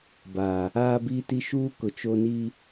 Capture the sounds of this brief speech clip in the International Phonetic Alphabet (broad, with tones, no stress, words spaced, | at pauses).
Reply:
baː˨ | aː˦biː˦ti˦ ʃuː˦kʊ˨ t͡ʃo˦ ni˦